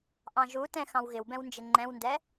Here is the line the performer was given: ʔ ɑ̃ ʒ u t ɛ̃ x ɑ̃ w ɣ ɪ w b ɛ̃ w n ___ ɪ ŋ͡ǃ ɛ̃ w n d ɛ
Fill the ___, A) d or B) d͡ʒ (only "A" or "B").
B